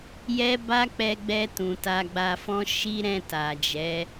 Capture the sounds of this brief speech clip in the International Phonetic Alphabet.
j ɛ˦ b a˦ k͡p ɛ˧ ɡ͡b ɛ˧ t ũ˨ t a˧ ɡ͡b a˧ f ɔ̃˦ ʃ i˦ ɾ ɛ̃˦˨ t a˨ d͡ʒ ɛ˨˦

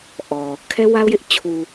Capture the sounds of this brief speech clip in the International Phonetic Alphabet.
ʔ ɔ˨ | kʰ ɛ˦ w a˦ ʊ̯ j ɪ˦ ʔ t͡ɕʰ u˨

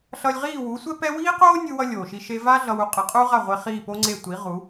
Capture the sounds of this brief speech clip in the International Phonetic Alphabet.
ɬ ʌ˧ lʲ ʁ iː˦˨ w u˨˦ sʷ ɛ˦ p ɛ˦ w iː˦ q oː˦ nʲ ɯ˦ w ʌ˦ lʲ oː˨ ʃ i˧ ʃ e˧ v a˦ ɮ ʌ˧ w u˧ qʼ ɯ˨ qʼ uː˦ ʁ a˦˨ ʁʷ e˧ χ iː˦˨ p o˦ ŋ͡ǀ e˦˨ tʷ i˨˦ ʁ u˨˦

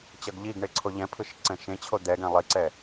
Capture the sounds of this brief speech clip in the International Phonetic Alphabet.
t͡ɕ ʌ ɡ ʎ i ɡ ɳ e ǀʰ o ʎ ɛ̃ pʰ ɯ ʃ ǀ ɛ̃ ʃ ẽ t͡ɕʰ o d̪ ɛ ɡ ɛ̃ lˠ i ǀ ɛ

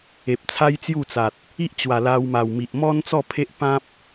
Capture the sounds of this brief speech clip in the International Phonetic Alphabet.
e˨ p̚ t͡sʰ a˦ j t͡s j u˥˧ t͡s a˨ t̚ | i˦ ʔ t͡ɕ w a˨˩ l a˧ w m a˨˩ w m i˨ ʔ m ɔ˦ n t͡s ɔ˥˧ pʰ e˦ ʔ p ã˦ p̚

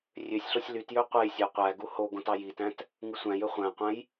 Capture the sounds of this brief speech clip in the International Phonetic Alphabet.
rʲ ø sʲ ɬ o sʲ l y t j ø qʷ e j sʲ æ qʷ æ ɡ u h o ɡ õ t ɑ j i t æ̃ t | ŋ ɯ sʷ æ̃ j ø χʷ æ̃ qʷ æ̃ j

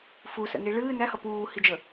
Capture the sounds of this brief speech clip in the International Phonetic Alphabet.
f u s ə̰ n i ɭ ɨː n æ h ʌ p uː h i d͡ʒ ə

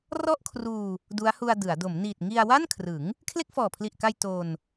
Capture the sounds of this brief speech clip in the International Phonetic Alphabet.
r ɔ˥˩ ʔ kʰ r uː˧ | d u˦˥ a̯ h u˧ a̯ d ɯ˩˦ a̯ d o˩˦ m n iː˨˩ t̚ ŋ i˧ a̯ w a˥˩ n kʰ r ɯ˩˦ ŋ | kʰ l e˥˩ k̚ f ɔː˨˩ pʰ l i˨˩ ʔ k a˧ j t o˧ n

